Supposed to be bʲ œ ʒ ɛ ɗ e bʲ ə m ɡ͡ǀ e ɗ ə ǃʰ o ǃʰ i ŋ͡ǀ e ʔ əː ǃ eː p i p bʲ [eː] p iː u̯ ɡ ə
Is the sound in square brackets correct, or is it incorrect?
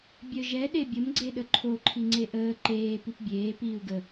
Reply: correct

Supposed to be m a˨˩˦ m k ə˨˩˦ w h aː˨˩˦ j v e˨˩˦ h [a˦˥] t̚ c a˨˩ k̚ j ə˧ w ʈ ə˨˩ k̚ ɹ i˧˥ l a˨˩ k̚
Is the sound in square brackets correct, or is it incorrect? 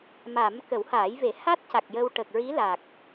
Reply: correct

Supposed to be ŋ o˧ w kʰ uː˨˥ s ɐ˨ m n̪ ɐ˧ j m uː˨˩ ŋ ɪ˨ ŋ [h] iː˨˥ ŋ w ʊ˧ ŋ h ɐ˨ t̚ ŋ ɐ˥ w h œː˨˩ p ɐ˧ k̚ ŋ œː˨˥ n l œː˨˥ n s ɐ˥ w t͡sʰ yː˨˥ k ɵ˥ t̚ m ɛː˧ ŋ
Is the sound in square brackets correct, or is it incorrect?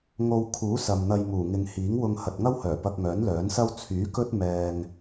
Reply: correct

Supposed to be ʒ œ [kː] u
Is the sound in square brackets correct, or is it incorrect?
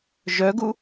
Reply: incorrect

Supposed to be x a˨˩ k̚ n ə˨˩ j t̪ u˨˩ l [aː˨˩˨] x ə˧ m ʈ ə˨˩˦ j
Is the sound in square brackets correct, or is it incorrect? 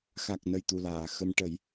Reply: correct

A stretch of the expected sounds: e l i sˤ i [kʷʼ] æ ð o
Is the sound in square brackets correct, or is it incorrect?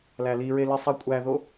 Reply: correct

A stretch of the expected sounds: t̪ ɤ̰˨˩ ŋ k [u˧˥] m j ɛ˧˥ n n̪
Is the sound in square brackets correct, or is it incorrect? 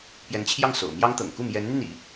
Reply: incorrect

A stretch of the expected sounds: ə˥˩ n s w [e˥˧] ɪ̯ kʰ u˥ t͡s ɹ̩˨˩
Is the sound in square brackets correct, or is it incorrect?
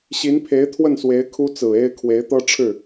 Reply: incorrect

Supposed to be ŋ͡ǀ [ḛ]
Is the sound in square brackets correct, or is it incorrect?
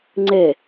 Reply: incorrect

